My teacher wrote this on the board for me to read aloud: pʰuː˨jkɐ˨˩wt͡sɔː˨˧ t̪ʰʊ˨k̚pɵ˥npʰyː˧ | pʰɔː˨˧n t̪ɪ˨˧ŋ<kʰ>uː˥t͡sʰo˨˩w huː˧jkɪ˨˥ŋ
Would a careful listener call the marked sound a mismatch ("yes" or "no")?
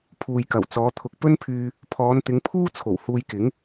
yes